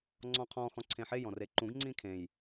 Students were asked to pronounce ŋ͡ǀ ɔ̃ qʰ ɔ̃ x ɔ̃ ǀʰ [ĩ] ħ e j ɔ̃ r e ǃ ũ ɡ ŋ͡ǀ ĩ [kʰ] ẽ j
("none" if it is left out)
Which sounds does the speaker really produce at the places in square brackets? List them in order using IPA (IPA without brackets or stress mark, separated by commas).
ẽ, kʰ